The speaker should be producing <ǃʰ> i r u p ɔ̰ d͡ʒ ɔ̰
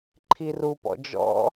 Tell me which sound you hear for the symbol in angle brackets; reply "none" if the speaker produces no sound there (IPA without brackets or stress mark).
ǃʰ